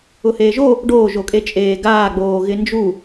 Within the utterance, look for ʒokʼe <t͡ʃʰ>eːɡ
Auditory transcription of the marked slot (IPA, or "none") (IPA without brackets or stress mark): t͡ʃʼ